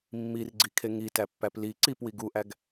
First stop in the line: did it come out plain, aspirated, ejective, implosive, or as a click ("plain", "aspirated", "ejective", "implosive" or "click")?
click